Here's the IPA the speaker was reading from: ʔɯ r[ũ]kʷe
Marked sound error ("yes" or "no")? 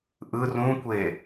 no